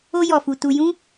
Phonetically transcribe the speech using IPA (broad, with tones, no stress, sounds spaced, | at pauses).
o˧ j ɔ˨ f u˨ t u˧ j ũ˦